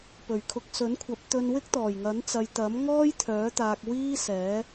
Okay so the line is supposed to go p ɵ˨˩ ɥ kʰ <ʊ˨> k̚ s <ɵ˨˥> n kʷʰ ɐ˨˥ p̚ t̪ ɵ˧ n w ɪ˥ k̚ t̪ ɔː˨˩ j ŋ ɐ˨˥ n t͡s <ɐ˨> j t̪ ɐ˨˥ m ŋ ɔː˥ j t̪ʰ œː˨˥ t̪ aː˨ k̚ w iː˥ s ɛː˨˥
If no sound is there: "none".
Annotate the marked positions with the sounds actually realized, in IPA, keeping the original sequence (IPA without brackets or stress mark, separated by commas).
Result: ʊ˨, ɵ˨˥, ɐ˨